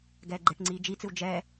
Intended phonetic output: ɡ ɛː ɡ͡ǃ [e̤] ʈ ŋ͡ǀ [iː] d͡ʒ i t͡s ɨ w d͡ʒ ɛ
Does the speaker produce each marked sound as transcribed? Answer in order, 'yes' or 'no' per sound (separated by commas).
no, yes